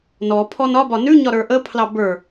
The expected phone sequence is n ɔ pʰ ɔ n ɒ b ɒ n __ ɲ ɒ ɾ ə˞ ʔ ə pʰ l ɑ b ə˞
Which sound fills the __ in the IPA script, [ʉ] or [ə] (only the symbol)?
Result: ʉ